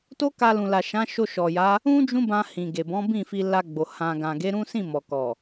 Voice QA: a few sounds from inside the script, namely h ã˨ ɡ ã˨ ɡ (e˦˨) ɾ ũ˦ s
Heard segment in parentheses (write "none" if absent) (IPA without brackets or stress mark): e˨˦